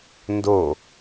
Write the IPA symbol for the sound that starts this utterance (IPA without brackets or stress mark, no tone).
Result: n